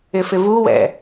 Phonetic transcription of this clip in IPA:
ɪ f ɪ v u w ɛ̰

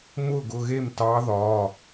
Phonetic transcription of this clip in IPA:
m ʊː˥˩ ɡ ʊ˩˧˩ ɣ e˥˩ m t ɑ˧˥ ð ɒː˩˧˩

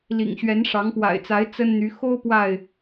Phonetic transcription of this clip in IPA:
l ḭ˨˩ ŋ ɕ ɥ ɛ˨˦ n ʂ ɑ˨˦ ŋ p w a̰˨˩ ɪ̯ t͡s a˨˦ ɪ̯ t͡s ə˦ n n̪ y˨˦ x o˦ ʊ̯ p w a˥˨ ɪ̯

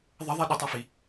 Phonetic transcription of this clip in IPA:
ðˤ ə ðˤ i ɗ ʏ tˤ a f i

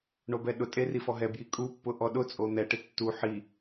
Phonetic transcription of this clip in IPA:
ɳ o b ɛ ɗ ʊ tʼ e r i f ɔ ɦ ɛ b j i kʼ u pː ʊ ʔ ɔ ɗ ʊ t͡sʼ o n̪ ɛ ʈ ɪ tː u ħ i

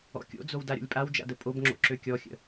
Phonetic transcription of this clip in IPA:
ɔ̰ kʲ o̰ d͡z o w d a ɾʲ o̰ lʲ pʼ a w d͡ʒ a̰ d ə pʼ o b ŋ͡ǁ o̰ ǁ ø kʲ ɔ xʲ ə̰

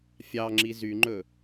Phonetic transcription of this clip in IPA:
fʲ ɑ ŋ͡ǁ i z y ŋ͡ǃ ɵ

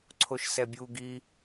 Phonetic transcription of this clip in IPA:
ǀʰ o ʃ s ɛ bʲ u ɡ i

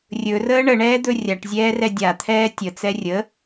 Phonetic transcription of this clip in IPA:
rʲ ɵ r əː ɳ ə ɳ ɛː d̪ ɵ rʲ a ʈ zʲ ɛː r ɛ dʲ a t̪ʰ ɛː tʲ ə t͡s ɛ rʲ ə

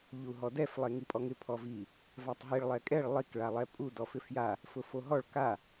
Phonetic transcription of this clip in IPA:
ʎ u ɦ ɔ d ɛ f lˠ e ŋ i pʼ ɔ ŋ ɪ pʰ ɔ v i | v a tˤ ɦ i ɭ lˠ ɛ kʼ ɛ ɭ lˠ i k ɭ a lˠ ɛ pʼ u d ɔ f ɪ f j a | f ʊ f o ɦ ɔ ɭ k a

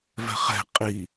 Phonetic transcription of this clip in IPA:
v ɛ̤ χ ɛ̤ qʼ i

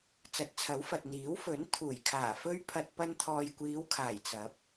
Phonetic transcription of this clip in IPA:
t͡s ɐ˨˥ t̚ t͡sʰ ɐ˨˥ w f ɐ˨ t̚ n̪ iː˨˥ w f ɵ˨˥ n t̪ʰ uː˨˩ j kʰ aː˨˩ f ɵ˥ ɥ pʰ ɐ˧ t̚ p ɐ˧ n t̪ʰ ɔː˨ j kʷ iː˨˧ w kʰ aː˨˩ j t͡s ɐ˨˥ p̚

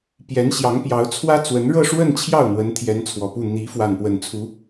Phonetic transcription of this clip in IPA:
p j ɛ˧˥ n ɕ j ɑ˧˥ ŋ p j ɑ˧˥ ʊ̯ t͡sʰ w ä˥ t͡s w ə˧˥ n ɻ ɤ˥˧ ʂ w ə˥˧ n t͡ɕʰ j ɑ˥˩ ʊ̯ n̪ w ə˧˥ n t̪ʰ j ɛ˧˥ n t͡sʰ w ɔ˨˩ p u˥˩ n̪ i˧˥ f w a˥˧ n p w ə˥˩ n t͡sʰ u˧˥

